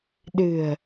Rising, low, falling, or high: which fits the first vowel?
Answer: low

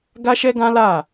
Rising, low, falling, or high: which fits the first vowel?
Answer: high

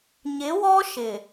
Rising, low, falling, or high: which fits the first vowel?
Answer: rising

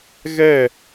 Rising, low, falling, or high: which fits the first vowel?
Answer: falling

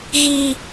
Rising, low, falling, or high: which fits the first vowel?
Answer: high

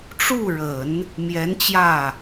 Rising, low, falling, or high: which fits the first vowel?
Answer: falling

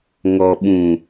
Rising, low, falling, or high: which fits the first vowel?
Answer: low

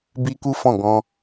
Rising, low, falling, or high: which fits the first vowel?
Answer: high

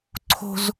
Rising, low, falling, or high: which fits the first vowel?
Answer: high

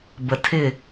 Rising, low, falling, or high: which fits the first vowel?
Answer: low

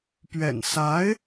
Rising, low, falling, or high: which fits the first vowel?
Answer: low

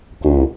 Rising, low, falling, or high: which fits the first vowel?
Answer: low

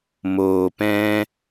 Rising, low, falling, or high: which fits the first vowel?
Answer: low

